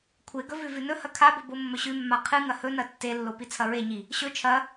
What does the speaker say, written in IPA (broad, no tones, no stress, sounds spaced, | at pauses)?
kʷʰ e ɡ ɵ v ʉ v ʉ n ɵ h ɐ kʰ a b ɵ b o mː ɵ ɕ ʉ mː a qʰ ɨ ŋ ɐ h ɵ n ɐ tː e lː o p i t͡sʰ ɐ ɹ e ɲ i | ɕ ɵ t͡ʃʰ ɐ